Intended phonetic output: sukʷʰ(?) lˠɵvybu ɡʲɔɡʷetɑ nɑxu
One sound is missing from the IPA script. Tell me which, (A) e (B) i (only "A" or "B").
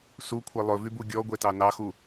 A